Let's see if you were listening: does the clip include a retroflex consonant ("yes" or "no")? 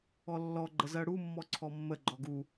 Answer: yes